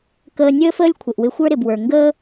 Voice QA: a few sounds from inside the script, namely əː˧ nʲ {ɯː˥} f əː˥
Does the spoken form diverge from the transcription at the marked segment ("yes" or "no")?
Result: yes